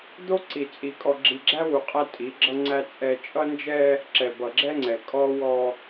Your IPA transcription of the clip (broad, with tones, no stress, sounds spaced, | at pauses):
d̪ o˦ ǀ i˨ t͡sʼ i˨ kʼ ɔ˨ ɡ͡ǁ i˨ ɡ͡ǁ æ˦ w u˨ qʼ æ˦ tʼ i˨˦ ɡ͡ǁ ʌ˦ ŋ͡ǀ æ˦ t͡sʼ ɛ˦ t͡ʃʼ ʌ˦ n d͡ʒ ɛ˦ | ǁ ɛ˨ b ʌ˨ ɡ͡ǁ ɛ˦ ŋ͡ǀ ɛ˨ kʼ ɔ˦ w ɔ˦